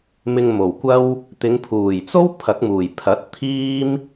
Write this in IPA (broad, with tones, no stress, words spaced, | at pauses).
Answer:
mɪ˧ŋmo˨˩wkʷɐ˥w | t̪ɪ˨˧ŋpʰuː˨˩jt͡so˥w pʰɐ˨˥k̚muː˨˩jpʰɐ˨˥t̚t̪ʰiː˥m